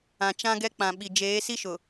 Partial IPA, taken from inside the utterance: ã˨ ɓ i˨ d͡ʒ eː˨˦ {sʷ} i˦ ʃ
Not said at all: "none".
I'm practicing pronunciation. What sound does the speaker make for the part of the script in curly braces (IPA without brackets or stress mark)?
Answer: s